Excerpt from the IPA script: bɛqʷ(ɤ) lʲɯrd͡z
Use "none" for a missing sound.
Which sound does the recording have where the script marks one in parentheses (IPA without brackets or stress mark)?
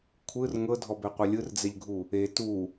ɤ